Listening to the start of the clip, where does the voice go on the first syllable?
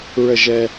falling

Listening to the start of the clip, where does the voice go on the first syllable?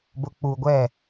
low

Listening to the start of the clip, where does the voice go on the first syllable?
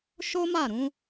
high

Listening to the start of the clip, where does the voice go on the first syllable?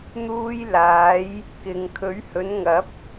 high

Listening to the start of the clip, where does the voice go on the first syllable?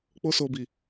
high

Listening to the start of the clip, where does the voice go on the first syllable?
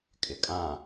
low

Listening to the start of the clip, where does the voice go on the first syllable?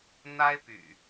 high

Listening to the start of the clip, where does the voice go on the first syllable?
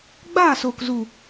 falling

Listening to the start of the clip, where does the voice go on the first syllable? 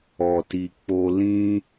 low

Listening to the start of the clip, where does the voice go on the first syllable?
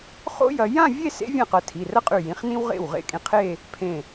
high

